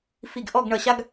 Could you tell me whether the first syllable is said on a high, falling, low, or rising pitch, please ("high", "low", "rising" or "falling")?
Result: low